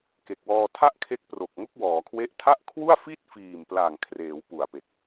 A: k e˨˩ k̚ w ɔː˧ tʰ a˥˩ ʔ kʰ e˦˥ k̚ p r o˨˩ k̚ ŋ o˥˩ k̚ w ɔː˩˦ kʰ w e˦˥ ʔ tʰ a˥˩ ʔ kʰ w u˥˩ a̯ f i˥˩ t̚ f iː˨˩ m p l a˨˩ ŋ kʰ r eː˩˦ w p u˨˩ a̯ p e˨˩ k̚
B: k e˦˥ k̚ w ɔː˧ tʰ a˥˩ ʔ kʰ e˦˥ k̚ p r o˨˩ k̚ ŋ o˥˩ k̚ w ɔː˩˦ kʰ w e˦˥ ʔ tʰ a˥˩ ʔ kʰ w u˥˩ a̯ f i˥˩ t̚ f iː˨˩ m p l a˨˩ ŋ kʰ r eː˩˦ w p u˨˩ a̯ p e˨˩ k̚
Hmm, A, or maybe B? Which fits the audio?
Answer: A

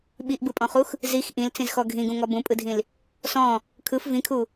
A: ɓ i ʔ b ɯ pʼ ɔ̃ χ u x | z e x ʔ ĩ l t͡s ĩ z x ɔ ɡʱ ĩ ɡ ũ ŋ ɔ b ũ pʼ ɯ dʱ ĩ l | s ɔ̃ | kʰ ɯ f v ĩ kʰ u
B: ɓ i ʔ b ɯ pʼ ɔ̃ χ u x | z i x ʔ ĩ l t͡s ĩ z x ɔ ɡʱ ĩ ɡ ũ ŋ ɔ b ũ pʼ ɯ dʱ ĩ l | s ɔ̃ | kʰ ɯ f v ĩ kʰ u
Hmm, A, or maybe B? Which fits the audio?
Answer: B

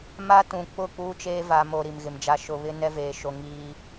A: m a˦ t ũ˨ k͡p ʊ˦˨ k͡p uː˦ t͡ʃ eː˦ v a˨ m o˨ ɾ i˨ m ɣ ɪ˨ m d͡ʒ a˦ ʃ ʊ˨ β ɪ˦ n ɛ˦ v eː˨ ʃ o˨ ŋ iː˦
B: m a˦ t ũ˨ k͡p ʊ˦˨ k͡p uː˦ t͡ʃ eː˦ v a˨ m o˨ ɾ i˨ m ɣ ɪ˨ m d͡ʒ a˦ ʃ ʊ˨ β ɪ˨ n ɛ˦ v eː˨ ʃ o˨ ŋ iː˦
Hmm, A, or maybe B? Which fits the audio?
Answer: A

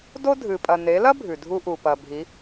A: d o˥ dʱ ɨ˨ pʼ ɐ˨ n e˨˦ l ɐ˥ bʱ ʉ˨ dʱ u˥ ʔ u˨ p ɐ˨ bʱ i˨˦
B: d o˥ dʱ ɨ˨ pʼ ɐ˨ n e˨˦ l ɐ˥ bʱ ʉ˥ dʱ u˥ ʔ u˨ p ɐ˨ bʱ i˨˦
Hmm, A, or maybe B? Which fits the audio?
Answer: A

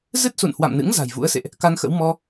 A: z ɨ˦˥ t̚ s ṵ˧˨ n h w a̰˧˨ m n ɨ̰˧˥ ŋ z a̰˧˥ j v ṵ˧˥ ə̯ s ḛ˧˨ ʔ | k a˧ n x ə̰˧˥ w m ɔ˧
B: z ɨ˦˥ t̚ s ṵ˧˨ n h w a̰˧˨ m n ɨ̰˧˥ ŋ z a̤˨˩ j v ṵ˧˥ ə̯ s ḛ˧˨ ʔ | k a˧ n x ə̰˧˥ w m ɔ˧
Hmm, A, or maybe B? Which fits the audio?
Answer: B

